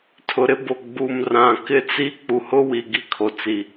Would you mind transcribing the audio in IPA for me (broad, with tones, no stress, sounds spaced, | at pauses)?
tʰ ʊ˨ ɾ ɪ˦ b o˨ ɡ͡b u˨ m r ã˨ k ɪ˦ t͡s i˦ k͡p u˨ h ʊ˦ w i˨ ɡ i˦ kʰ o˨ t͡s i˨